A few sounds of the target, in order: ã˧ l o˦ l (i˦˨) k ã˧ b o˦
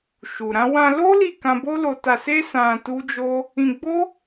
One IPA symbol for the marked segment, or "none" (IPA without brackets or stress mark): i˦˨